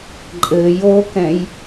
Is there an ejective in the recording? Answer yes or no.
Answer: yes